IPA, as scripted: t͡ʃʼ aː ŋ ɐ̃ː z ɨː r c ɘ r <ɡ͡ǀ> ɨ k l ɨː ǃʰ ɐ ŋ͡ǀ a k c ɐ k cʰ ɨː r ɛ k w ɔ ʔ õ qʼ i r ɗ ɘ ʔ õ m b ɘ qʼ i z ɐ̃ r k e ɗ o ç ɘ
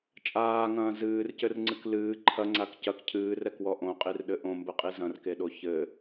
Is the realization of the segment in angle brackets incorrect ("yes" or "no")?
yes